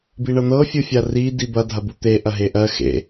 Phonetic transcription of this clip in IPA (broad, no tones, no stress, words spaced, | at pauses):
biɳɤn̪ɤ fʲɯfʲari dibɐ dʱɐbut̪e ʔɐɦeʔɜ xḛ